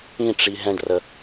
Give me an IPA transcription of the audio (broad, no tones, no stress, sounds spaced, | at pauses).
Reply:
ĩ ʈ͡ʂ i ɦ ɛ̃ ɖ r ə